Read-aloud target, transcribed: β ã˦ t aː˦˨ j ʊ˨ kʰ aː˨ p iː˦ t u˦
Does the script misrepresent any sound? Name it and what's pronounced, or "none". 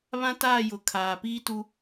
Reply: none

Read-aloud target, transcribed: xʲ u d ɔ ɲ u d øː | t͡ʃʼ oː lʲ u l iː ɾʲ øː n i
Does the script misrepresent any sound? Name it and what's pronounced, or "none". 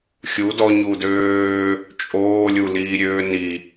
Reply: none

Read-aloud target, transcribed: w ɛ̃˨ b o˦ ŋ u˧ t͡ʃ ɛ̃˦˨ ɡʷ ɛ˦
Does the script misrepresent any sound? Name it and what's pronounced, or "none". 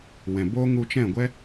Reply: none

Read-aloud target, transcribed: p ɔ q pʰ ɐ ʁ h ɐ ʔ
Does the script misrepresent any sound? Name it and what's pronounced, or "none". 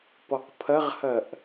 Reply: none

